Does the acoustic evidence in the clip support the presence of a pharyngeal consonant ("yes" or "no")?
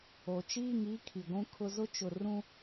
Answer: no